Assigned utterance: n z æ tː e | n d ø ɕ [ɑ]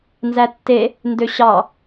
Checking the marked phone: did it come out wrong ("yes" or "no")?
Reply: no